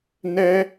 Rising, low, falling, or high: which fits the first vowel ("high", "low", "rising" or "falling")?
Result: high